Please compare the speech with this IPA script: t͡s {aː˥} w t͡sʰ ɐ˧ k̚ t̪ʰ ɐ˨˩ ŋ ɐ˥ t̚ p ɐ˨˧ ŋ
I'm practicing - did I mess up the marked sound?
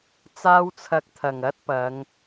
no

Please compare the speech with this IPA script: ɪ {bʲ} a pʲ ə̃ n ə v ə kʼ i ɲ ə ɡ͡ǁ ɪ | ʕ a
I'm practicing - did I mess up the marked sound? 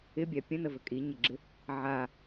no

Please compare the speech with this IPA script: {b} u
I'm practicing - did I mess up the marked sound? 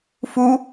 yes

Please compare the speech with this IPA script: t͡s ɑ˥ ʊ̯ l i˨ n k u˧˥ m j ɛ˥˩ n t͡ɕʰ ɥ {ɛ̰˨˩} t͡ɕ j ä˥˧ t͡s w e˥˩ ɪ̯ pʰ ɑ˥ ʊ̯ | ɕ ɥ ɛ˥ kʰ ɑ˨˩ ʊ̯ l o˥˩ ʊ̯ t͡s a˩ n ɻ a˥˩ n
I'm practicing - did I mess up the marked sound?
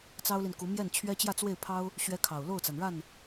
yes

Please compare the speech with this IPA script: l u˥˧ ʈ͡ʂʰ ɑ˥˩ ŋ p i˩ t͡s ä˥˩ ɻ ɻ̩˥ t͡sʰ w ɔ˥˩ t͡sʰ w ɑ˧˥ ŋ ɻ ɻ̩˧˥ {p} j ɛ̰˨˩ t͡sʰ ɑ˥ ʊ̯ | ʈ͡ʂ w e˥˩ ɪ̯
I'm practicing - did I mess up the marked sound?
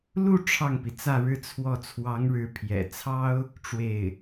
yes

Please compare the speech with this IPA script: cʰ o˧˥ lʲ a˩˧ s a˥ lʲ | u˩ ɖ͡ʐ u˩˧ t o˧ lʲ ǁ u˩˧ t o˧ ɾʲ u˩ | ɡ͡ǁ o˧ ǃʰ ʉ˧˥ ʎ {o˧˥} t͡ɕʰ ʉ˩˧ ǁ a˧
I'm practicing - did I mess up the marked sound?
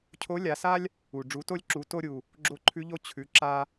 no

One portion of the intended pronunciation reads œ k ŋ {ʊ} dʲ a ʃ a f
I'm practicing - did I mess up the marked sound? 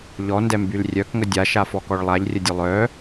yes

